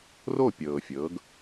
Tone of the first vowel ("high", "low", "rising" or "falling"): falling